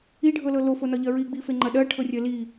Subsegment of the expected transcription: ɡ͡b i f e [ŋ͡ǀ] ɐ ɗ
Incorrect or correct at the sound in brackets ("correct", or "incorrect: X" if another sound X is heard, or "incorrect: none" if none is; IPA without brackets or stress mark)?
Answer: incorrect: ŋ͡ǃ